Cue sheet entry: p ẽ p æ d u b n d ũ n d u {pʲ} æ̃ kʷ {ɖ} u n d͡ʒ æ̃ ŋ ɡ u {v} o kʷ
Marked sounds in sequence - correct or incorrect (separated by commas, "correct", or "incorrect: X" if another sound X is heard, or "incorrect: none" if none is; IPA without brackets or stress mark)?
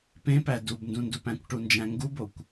incorrect: p, incorrect: ʈ, incorrect: b